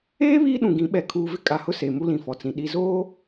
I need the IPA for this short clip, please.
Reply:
eː˦ βiː˦ɗũ˨ɡĩ˨˦ɓɛ˨˦ kʰuː˨vɪ˦ kʼa˨hʊ˦ se˨ mu˦lĩ˨fɔ˨t͡sĩ˨ ɗi˨zoː˦

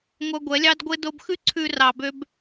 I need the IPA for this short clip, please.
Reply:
ŋʷœ˧ɡʷɛ˨˦lʲɑ˦dɡʷe˦ do˧bxʉ˦ ǀʰʉ˧ rɑ˧bø˦b

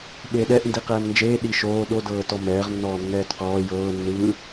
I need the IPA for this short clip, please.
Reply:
ɓeɗɛʔ ndiqɛːmnd͡ʒeː ɗiʃoː ɗodɤːtɔ mɛːʁnːɔː nːɛːtqɔː jɤː nːɯ

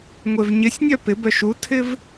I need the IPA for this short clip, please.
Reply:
ŋʷevɲɪsʲnʲœ pɪbœ ʃutʰɪv

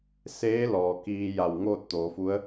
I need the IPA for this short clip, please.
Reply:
seː˧˥ lɔː˩kiː˧ja˧˩w ŋoː˥˨t̚ t̪oː˩˧fu˧˥ə̯

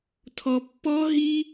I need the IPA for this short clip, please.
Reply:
tʰɔ˧pːɔ˥ ɦi˥

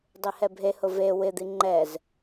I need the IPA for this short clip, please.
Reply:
dˤehɛbʱehʊ ve wɪd̪i ŋ͡ǃɛz

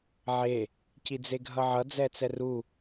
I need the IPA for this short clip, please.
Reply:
ʕe | cid͡zeɡʱʌʕʌ d͡zɛt͡sɛru

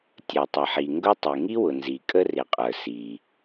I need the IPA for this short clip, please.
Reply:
tʲə˞˩tˤʌ˩ħi˩ ŋɡʊ˥ tˤi˩ŋi˥wʊ˩ nzi˩kʼə˥rɪ˩qʼə˞˩ si˩

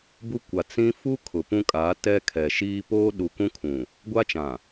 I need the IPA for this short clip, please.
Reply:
bu˦kʷa˨ t͡sĩ˦ fu˦ kʰʊ˨pũ˦kʼaː˨˦ tɛ˦kʰɛ˨ʃiː˦ poː˦ɗu˨kũ˦kʰũ˨ | ɡʷa˦t͡ʃã˨

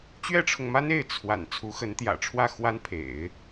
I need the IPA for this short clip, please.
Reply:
t͡ɕɥɛ˥ʈ͡ʂʰʊ˨ŋma˥n e˥˩ɪ̯ t͡sʰwa̰˨˩n t͡sʰu˧˥xə˧˥nt̪jä̰˨˩ʈ͡ʂʰwä˥˩ xwa˥npʰḛ˨˩˦ɪ̯

